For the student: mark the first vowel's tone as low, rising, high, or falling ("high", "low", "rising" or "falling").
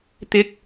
high